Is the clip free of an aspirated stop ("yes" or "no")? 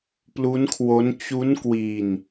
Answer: no